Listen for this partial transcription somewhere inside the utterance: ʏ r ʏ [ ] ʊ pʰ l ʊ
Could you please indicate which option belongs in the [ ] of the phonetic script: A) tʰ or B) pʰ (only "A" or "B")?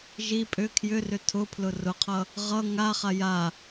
A